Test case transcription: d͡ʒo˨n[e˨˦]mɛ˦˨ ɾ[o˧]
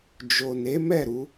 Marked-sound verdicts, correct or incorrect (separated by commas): correct, incorrect